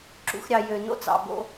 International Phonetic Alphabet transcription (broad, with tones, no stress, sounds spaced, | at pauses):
ǁ ṵ˧ x ɾʲ ɑ˨ j ø˨ n o̰˦ t͡s ɑ̰˨ b o̰˦